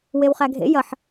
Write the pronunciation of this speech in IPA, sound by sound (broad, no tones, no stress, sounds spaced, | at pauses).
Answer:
w e w χ æ ɡʱ ḛ j ɐ ħ